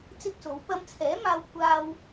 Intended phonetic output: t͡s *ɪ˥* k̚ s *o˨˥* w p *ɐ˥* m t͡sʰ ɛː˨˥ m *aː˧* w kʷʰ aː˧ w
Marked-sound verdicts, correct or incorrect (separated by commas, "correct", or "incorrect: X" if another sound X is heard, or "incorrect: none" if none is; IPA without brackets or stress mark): correct, correct, incorrect: ɐ˧, correct